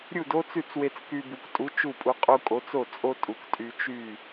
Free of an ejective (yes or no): no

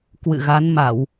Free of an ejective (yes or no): yes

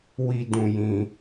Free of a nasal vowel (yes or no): no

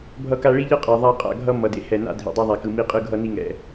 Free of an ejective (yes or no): no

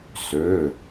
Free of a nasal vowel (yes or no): yes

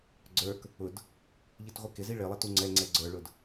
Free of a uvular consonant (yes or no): no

